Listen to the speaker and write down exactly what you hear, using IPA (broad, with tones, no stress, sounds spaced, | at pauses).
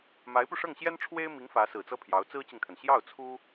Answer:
m a˧˥ ɪ̯ p u˧ ʂ ɤ˥˩ ŋ ɕ j ɛ˥ n ʈ͡ʂʰ w e˥ ɪ̯ m i˧˥ ŋ f ä˧˥ s ɹ̩˨˩ t͡s ɤ˥ pʰ j ɑ˧˥ ʊ̯ t͡s ɹ̩˥ t͡ɕ i˨ ŋ t̪ʰ ə˩ n ɕ j ɑ˥˩ ʊ̯ t͡sʰ u˥